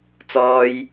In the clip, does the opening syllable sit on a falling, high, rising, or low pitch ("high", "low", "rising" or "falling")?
high